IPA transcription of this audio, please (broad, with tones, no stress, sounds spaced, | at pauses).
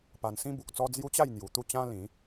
p a˧ n s ĩ˦ b u˨ k̚ t͡s ɔ˦ d͡z j u˦ t͡ɕ a˥˧ j n̪ j u˨˩ t̪ u˥˧ t͡ɕ ã˦ l ĩ˨˦